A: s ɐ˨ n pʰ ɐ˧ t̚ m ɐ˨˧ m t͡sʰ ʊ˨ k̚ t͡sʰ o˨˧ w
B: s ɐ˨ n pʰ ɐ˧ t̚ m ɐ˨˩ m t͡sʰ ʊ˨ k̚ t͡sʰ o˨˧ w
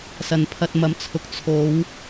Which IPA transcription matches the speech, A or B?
A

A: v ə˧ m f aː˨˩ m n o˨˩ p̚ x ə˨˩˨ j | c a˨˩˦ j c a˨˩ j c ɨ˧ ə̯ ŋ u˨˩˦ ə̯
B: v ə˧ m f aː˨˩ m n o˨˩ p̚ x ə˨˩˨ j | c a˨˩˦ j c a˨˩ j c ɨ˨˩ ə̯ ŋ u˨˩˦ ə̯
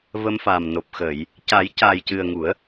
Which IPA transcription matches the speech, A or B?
B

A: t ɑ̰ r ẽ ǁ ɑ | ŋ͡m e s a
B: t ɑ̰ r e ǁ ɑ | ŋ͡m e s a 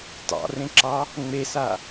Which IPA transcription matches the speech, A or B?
A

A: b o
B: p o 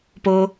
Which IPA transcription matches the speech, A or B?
B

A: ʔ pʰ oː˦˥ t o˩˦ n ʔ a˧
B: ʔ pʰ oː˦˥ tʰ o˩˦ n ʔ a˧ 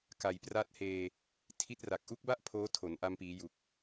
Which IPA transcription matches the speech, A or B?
B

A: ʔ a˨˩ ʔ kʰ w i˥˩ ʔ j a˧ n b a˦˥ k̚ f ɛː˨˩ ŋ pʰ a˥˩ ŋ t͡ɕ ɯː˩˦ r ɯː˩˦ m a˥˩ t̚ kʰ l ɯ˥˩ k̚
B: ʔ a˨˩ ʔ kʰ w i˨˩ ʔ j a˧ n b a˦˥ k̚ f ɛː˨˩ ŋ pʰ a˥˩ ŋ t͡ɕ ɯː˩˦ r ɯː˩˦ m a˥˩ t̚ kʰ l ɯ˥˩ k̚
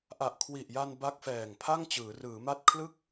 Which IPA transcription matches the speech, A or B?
B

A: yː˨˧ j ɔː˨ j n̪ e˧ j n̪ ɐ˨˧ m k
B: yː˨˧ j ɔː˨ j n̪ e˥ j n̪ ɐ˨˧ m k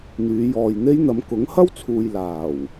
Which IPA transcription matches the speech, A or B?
B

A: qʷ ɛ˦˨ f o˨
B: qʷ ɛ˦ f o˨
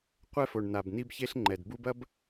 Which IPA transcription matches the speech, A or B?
B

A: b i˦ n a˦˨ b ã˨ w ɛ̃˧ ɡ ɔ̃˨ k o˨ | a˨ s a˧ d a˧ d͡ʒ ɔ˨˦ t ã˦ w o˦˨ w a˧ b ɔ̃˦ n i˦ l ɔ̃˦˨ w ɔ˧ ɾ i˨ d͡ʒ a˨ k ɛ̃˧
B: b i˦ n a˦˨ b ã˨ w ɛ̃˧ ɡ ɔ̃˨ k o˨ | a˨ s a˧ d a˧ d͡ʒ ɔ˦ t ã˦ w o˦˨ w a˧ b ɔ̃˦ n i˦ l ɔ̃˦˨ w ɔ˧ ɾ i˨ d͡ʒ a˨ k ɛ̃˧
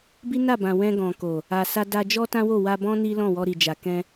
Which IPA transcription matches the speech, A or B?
B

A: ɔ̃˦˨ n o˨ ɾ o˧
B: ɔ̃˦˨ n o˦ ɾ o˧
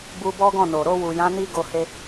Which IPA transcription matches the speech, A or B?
A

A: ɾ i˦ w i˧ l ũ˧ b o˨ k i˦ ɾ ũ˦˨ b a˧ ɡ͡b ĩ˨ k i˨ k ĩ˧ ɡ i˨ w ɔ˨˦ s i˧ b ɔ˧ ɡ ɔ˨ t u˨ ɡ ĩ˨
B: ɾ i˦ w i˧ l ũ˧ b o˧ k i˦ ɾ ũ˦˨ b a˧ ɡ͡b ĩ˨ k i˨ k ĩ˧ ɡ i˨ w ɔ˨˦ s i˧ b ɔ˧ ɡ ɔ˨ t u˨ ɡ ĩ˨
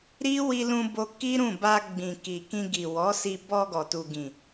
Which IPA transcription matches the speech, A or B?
B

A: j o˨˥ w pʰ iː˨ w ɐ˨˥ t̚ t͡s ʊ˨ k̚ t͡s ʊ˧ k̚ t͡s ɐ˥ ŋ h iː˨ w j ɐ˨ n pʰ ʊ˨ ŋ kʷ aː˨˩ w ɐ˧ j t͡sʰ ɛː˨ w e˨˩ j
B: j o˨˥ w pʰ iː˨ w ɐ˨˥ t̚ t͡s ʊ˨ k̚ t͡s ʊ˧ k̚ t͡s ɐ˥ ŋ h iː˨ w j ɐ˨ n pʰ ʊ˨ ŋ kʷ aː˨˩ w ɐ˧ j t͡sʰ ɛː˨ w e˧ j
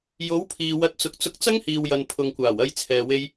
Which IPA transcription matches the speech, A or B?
B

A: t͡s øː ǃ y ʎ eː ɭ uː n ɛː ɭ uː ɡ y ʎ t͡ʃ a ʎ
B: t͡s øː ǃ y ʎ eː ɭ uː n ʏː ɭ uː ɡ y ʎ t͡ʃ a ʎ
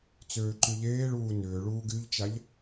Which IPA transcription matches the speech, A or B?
B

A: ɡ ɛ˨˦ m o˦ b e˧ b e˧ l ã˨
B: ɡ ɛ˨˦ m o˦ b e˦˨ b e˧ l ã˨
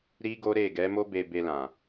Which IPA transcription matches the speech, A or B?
A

